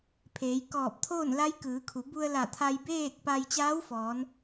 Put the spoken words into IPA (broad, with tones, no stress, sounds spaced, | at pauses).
pʰ eː˩˧ j k ɔː˧˩ p̚ t̪ʰ oː˥˨ n l a˧˥ j k ɯː˩˧ kʰ u˩˧ b u˧ ə̯ l a˧˩ t̪ʰ a˧ j b eː˥˨ k̚ p a˧ j t͡ɕ aː˧˥ w f ɔː˩˧ n